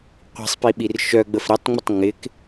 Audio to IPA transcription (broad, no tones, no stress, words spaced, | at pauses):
qʷi̤sˤ piɓirʃœɡ͡bəf ɾitˤŋ͡mətˤ ŋɪk